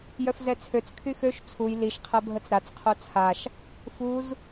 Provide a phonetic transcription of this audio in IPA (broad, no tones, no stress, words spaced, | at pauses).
jœfzɛt͡sʰøt͡s kʰyxøʃ t͡sʰuj liʃ qʰɛbʱət͡sɾat͡s qʰot͡sʰaʃ | fuz